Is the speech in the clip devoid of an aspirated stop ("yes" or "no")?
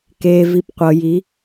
yes